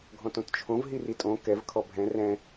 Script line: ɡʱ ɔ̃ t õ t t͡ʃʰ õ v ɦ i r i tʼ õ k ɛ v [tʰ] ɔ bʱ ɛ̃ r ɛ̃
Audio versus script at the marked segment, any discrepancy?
yes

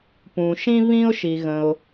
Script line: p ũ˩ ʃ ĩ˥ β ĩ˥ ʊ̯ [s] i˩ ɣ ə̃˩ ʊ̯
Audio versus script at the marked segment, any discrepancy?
yes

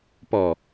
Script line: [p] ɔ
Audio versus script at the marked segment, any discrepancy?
no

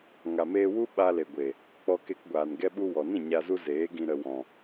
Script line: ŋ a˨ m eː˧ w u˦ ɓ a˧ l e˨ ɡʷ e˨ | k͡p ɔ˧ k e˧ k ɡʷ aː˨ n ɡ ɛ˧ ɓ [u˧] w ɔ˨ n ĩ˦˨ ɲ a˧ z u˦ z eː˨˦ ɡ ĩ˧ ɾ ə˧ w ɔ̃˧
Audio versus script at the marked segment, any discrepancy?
no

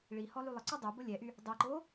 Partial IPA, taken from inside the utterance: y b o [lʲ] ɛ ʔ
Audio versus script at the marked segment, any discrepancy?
no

